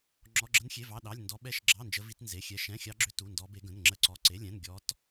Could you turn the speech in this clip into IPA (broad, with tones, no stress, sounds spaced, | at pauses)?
ŋ͡ǁ ɔ˧˥˧ ɡ͡ǁ ə˦˥ n xʲ e˧˥˧ v ɑ˧˥˧ ɗ ɑ˧˥˧ lʲ n d ɔ˦˥ ɓ ɛ˦˥ ʃ ɡ͡ǁ ɑ˧˥˧ n d͡ʒ ə˦˥ v i˦˥ t n z e˧˥˧ xʲ ɛ˦˥ ʃ ɛ̃˧˥˧ xʲ ɑ˦˥ ɡ͡ǁ ʏ˦˥ t u˧˥˧ n d ɔ˦˥ b e˦˥ ɡ ə̃˧˥˧ n ŋ͡ǁ ə˦˥ ǀ ɔ˧˥˧ ǀ e˧˥˧ lʲ ɛ̃˧˥˧ n ɡʲ ɔ˦˥ t